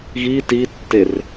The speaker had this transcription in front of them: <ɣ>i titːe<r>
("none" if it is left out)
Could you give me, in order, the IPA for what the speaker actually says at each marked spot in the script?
ɣ, r

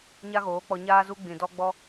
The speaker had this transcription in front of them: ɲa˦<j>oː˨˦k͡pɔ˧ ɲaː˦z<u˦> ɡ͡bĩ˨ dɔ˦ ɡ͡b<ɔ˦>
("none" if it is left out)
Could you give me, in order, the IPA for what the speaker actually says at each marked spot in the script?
ɣ, u˦, ɔ˦

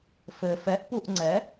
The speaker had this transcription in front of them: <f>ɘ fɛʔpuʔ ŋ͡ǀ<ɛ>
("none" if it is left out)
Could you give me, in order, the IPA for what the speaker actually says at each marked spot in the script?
f, ɛ

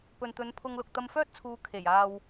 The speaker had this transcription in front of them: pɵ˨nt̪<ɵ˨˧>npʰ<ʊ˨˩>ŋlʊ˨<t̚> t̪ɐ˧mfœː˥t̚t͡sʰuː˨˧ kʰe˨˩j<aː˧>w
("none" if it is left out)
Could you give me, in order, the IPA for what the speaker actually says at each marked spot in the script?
ɵ˨˧, ʊ˧, k̚, aː˧

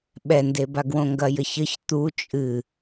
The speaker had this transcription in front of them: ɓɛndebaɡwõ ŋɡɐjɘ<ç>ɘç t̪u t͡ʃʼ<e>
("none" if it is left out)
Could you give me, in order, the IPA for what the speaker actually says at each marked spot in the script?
ç, ɨ

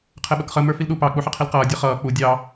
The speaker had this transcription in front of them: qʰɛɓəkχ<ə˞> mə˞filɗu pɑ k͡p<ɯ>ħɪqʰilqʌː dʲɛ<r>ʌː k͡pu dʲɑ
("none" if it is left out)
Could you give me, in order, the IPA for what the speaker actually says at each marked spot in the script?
ə, u, χ

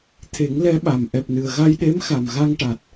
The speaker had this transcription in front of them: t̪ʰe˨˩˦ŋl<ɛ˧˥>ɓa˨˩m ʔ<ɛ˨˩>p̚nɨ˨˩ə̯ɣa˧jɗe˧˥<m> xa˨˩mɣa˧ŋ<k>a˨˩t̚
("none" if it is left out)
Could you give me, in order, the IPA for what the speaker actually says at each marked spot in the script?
ɛ˧˥, ɛ˨˩, m, ʈ

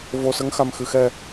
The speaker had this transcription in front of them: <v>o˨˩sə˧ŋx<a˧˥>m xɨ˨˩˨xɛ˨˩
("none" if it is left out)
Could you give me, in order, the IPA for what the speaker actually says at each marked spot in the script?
v, a˨˩

